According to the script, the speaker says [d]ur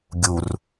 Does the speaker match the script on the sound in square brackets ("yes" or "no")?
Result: no